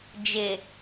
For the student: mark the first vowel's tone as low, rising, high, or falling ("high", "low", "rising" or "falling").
low